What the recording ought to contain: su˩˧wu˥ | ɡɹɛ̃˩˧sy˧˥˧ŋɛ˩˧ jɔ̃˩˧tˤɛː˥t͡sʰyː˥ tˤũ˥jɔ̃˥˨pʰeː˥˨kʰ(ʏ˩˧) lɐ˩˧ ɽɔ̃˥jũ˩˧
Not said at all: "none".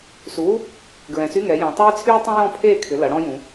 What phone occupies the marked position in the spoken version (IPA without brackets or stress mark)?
ʏ˩˧